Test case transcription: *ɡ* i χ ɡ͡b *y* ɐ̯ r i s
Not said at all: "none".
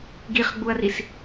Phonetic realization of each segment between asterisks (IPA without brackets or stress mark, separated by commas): ɡ, u